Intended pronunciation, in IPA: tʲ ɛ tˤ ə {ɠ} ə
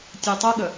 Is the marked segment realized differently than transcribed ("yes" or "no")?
no